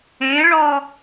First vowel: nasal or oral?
nasal